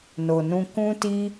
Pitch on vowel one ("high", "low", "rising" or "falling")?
low